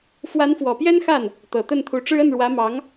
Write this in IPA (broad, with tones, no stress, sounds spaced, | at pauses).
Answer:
f w a˧˥ n f w ɔ˨˩ p j ɛ˥ n x a˥˩ n | t̪ ɤ˨˩ t̪ ə˥˩ n t̪ʰ u˧˥ ʈ͡ʂ ɻ̩˥ ə˥˩ n ɻ w ä˧˥ m ɑ˧˥ ŋ